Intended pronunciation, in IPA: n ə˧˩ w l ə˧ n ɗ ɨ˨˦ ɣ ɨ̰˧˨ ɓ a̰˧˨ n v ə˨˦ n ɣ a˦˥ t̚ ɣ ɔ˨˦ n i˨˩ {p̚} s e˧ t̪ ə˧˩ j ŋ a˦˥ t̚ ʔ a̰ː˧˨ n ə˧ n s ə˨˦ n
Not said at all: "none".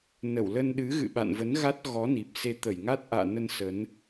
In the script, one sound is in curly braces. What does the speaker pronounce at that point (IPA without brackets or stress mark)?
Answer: p̚